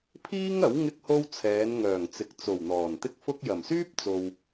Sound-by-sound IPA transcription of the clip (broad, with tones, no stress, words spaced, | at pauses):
pʰiː˥ŋɐ˨˥w ŋɪ˧k̚ho˧w t͡sʰɛː˨˧nŋœː˨˩ŋt͡sɪ˨k̚t͡so˨˩w n̪ɔː˨˩nt̪ɪ˥k̚fʊ˥k̚ jɐ˨˩msyː˥p̚t͡so˨w